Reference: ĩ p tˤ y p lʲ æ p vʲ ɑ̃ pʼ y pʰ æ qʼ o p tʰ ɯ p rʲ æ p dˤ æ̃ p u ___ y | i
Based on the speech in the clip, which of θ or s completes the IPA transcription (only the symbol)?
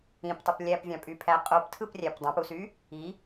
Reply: s